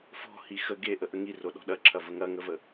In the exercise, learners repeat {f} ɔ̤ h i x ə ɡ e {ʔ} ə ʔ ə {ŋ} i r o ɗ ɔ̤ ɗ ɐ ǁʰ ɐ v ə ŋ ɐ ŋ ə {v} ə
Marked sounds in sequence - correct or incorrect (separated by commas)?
correct, correct, correct, correct